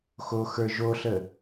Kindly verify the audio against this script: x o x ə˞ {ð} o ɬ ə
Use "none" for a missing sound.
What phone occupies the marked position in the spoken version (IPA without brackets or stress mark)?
ʒ